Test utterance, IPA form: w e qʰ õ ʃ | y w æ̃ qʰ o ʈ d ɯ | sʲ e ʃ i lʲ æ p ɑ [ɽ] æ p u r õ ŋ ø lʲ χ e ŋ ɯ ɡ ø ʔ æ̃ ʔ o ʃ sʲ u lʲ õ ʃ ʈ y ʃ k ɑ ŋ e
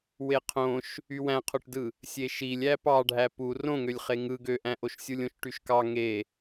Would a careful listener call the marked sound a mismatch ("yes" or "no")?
yes